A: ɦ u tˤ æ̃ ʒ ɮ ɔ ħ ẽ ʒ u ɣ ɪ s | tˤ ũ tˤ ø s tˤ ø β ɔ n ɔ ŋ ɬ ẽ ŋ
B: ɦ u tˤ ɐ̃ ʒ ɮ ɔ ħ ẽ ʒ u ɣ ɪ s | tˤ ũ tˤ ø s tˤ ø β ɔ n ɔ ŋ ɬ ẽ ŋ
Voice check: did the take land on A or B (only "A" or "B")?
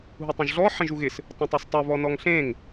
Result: B